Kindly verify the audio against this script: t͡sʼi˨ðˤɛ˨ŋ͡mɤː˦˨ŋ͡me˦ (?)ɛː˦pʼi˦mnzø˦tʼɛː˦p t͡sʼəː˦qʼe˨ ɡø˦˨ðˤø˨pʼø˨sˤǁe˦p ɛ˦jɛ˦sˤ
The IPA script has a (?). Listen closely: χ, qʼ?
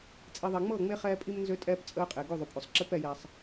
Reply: χ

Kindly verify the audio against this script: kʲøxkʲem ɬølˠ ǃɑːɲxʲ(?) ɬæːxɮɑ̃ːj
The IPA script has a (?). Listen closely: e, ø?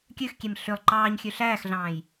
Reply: ø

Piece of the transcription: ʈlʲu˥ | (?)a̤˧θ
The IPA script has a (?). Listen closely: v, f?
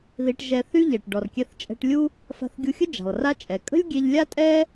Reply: f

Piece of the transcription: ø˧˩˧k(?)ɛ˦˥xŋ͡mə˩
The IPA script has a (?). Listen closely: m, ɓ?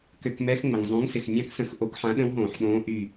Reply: m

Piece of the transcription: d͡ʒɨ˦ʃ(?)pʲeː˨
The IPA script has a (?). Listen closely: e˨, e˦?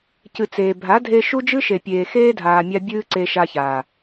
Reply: e˨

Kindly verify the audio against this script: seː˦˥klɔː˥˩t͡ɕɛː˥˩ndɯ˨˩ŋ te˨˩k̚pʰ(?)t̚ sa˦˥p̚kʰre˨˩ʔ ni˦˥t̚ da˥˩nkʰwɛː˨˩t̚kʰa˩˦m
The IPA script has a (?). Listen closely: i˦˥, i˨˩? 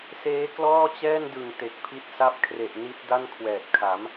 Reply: i˦˥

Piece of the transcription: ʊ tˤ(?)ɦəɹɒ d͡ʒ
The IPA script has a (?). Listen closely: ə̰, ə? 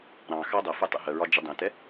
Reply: ə̰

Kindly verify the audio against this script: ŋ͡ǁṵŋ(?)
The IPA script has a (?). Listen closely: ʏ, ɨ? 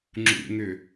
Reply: ʏ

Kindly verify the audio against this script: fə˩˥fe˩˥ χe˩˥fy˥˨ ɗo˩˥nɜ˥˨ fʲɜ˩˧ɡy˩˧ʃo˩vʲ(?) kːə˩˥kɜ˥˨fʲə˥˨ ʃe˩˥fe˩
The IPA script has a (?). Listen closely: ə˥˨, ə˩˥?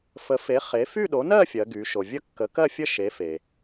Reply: ə˥˨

